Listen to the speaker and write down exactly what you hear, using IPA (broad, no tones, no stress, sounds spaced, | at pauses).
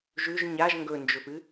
ʒ ʉ ʒ ɲ a ʒ ŋ ɡ ɵ n d͡ʒ ɵ f ɨ